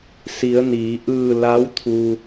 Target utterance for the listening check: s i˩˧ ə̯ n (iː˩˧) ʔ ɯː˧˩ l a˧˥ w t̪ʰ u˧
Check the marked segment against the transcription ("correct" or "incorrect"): correct